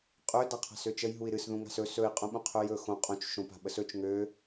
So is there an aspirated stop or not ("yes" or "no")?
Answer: yes